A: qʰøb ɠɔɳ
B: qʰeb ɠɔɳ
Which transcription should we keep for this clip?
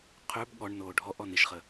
A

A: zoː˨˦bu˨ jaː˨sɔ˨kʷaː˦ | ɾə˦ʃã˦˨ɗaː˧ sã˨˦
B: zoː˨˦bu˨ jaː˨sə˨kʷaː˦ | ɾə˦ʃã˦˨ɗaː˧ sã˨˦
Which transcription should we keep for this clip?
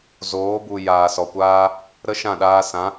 A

